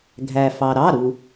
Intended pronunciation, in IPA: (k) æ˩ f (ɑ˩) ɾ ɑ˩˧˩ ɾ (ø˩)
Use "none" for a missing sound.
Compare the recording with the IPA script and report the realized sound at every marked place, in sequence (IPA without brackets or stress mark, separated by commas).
ɡʱ, ɑ˩, u˩